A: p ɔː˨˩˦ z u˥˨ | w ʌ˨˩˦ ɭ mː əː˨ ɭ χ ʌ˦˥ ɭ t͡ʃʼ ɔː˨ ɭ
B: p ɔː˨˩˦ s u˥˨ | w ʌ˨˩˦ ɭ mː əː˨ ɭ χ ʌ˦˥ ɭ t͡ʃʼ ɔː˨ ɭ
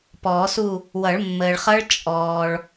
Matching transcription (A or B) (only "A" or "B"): B